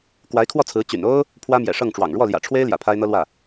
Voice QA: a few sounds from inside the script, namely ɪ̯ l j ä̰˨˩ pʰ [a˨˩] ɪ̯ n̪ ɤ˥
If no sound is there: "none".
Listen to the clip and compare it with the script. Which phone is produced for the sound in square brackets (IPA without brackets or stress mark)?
a˥